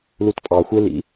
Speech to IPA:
l u t pʼ ɑ xʷ e l ḭ

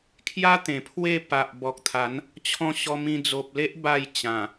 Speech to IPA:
kʰ j a˦ t̪ ẽ˨˩ pʰ w e˥˧ p a˨ ʔ b ɔ˨ k̚ t̪ʰ a˨˦ n | t͡ɕʰ ɔ̃˧ ɕ ɔ˧ m ĩ˧ d͡z o˨ p̚ l e˦ ʔ b a˥˧ j t͡ɕ ã˨˩

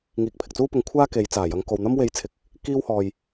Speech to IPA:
ŋ iː˨ k̚ pʰ ɪ˨ k̚ t͡s uː˥ p ʊ˧ ŋ kʷʰ aː˥ k e˨˧ j t͡s aː˨˩ j ɐ˨˧ ŋ k o˨ w n̪ ɐ˥ m w e˧ j t͡sʰ ɪ˧ k̚ | k iː˥ w h ɔː˧ j

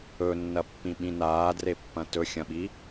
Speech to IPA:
ɵ nː ɐ pː ĩ ɓ ĩ n aː d r e pː ɐ̃ t ɵ xʲ ɐ̃ ɓ i

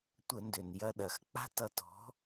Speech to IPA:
tʷ ə˧˩˧ n d ø˩ n j ɐ˧ ɗ ɐ˩ x k͡p a̤˥ t ʌ˧ t ɔ̤˨˥

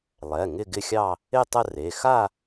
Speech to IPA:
lˠ ɛ˩˧˩ ŋ ɪ˥˧ ɡ ɪ˥˧ xʲ ɑ˥˧ | ɪ˥˧ tˤ ə˥˧ r e˩˧˩ x a˥˧

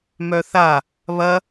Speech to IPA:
m œ θ a | β ɐ

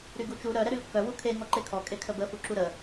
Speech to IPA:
ɾ y ɡ u t͡ʃ u ɾ œ ɾ ɛ ɾ y l kː œ w u kʰ e ŋ ɔ ǃ e kʰ ɔ kʼ e kʰ ə b ə f u ǁ u ɾ ə

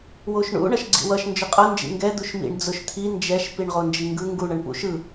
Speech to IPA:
w o ʃ ɳ ṵ ɳ ʌ ʃ ɡ͡ǀ ḭ w ʌ ʃ n d͡ʒ ʊ qʼ ʌ n d͡ʒ ḭ ŋ ɡ ɛ d̪ u ʃ m ḭ ɳ d͡z ʊ ʃ t̪ʰ i n d͡ʒ ɛ ʃ p i ɳ ʁ o n d͡ʒ i ŋ ɡ ɯ ŋ ɡ u ɳ ʌ ɳ p ṵ ʃ ɯ

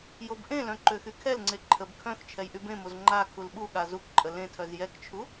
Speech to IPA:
j o b ʔ ẽ l œ̃ ǃ ø x y kʰ ɛ l ŋ͡ǀ e ǃʰ ə b kʰ œ̃ x t͡ʃʰ ɛ j ʔ y b ẽ m o z ŋ͡ǃ a kʰ u l ɓ u ɠ a z u k ǃʼ ə l ẽ tʰ œ z j ɛ k t͡ʃʰ u

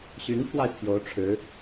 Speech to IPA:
ɕ y˧˥ n pʰ w a˧ ɪ̯ pʰ j o˧˥ ʊ̯ ʈ͡ʂʰ ɻ̩˧˥

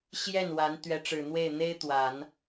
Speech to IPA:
ɕ j ɛ˥˩ n w a˧˥ n t̪ ɥ ɛ˧˥ ʈ͡ʂ ɻ̩˨˩ n̪ w e˥˩ ɪ̯ n̪ e˥ ɪ̯ t̪ w a˨˩˦ n

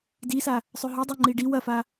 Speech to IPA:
d i s a | sˤ ø ɦ ø dˤ o ŋ͡ǃ i ɖ i w ɐ f a

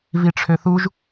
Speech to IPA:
v i ʈ͡ʂʰ ø θ u ʒ

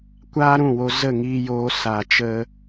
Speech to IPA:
kʷ aː˦ ɾ ũ˦˨ w o˧ z ə˦˨ ŋ iː˧ j oː˧ s a˨ t͡ʃ ə˧

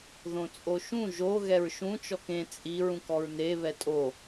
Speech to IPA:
ð õ t͡sʼ o ʃ ũ ʒ o ɣ ɛ ɹ ʃ ũ t͡ʃ ɔ k ẽ t͡sʼ i ɹ ũ k ɔ ɹ n e β ɛ tʼ o

